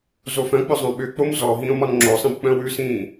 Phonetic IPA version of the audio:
zofœ̃k͡pʏ zˤœ̃ɓʏk͡pom zɔ ɦĩːo̯mɒnŋ͡ǁosˤĩb k͡pœ̃wʉsĩː

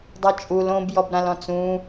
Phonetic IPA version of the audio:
dˤɛt͡ʃʼul õbjɔbɾãlɔ̃ t͡sũ

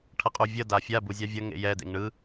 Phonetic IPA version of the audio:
ʈʰʌqʼuvʲʌ dafʲa buzʲavʲʌ ŋḛjɛdḛŋ ɳɯ

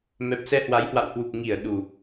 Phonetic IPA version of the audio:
mɛ˨˩p̚sɛ˧hwa˨˦jhwa̰˧˨w hwu˨˩p̚ŋi˧˩ə̯ ɗu˨˩

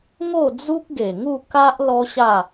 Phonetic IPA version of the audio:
ŋo˥˧d͡zu˦k̚ɡe˨˩ŋu˥˧ ka˦ʔ lɔ˦ɕa˥˧

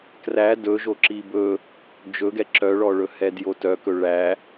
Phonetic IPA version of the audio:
kræ dɵʒo ǁibɵ | d͡ʒɵɡɛ ǁœɭɔɭɵ hɛdjotœkɵ ɭæ

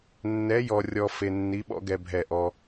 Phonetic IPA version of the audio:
nːɛ˧˥jɔ˧rʲɔ˧ fe˧nːi˧˥ɓɔ̰˥ ɡɛ˧bʱɛ˧˩ʔɔ˧

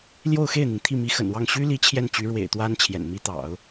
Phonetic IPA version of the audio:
ljo˥˧ʊ̯xe˥˩ɪ̯n̪i˩ŋ t̪ʰi˥˩mi˧˥xə̰˨˩nwɑ˥˩ŋ ɕy˥li˧˥ t͡ɕʰjɛ˥˩nt͡ɕy˧˥ ɻwḛ˨˩ɪ̯t̪wa˥n t͡ɕʰjɛ̰˨˩nmi˥t̪ɑ̰˨˩˦ʊ̯

